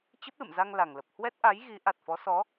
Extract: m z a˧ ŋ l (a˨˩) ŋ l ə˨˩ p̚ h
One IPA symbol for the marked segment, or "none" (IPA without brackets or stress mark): a˨˩